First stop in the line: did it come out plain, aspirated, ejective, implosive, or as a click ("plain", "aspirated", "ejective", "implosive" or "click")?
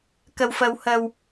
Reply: plain